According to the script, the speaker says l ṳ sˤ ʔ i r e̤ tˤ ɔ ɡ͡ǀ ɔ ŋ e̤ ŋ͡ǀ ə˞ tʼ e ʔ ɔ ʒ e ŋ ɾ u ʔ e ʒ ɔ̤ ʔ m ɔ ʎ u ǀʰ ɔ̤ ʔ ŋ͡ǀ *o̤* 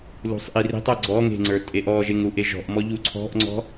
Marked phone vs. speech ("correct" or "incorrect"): incorrect